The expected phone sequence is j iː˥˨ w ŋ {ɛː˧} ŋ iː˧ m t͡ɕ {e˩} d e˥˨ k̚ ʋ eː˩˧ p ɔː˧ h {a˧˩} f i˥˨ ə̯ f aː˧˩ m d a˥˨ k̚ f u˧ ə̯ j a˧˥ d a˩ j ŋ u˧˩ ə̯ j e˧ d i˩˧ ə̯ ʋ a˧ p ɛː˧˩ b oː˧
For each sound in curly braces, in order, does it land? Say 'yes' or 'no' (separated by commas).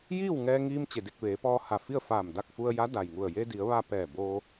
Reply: yes, yes, yes